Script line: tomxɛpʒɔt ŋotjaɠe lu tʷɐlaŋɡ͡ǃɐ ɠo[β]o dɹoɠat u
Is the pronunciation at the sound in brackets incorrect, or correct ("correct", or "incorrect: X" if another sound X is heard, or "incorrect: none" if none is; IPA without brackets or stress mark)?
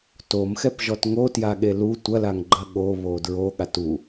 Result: correct